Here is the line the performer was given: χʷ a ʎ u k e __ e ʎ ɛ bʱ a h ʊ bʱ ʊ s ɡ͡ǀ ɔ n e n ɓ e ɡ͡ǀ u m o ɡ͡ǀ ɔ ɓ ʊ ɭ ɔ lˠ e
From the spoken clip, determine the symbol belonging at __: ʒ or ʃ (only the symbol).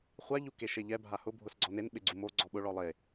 ʃ